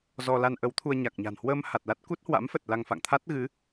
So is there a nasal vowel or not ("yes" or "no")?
no